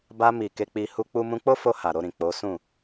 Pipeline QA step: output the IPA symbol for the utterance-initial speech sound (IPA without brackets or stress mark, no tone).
b